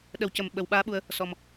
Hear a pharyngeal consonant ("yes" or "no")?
no